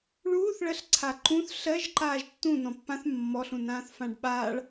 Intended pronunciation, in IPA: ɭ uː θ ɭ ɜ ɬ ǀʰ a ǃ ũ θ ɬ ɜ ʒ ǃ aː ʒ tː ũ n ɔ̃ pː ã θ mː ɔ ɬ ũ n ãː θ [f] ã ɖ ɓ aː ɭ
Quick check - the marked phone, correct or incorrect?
correct